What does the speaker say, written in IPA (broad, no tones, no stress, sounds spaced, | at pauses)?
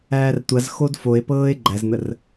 æː r tʷ a z x o d f o e̯ p ɤː e̯ ɡ͡ǃ æ z n̪ ə r